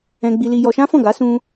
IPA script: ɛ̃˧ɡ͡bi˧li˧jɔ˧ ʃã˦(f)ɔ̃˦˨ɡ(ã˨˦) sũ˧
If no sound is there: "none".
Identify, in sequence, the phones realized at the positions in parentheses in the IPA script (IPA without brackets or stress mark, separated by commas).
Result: f, a˨˦